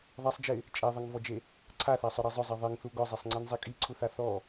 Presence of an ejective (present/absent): present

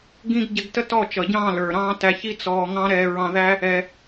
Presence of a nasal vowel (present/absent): present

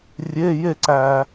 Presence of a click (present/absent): present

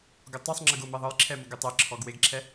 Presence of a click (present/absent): present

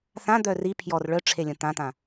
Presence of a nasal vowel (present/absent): present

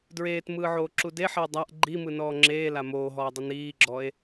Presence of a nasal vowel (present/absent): absent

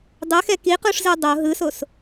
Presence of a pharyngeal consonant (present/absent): absent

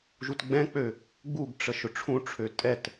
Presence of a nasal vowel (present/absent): present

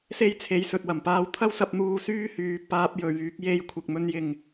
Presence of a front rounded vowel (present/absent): present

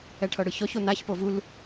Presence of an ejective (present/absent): absent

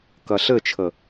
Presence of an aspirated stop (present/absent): present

